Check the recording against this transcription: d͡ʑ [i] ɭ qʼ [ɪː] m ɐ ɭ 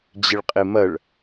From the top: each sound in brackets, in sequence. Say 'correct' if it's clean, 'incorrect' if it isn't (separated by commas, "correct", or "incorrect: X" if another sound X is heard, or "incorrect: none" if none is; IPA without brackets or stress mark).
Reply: incorrect: ɪ, incorrect: ɪ